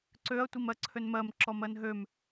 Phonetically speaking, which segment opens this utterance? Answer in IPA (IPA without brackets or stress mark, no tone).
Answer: ǀ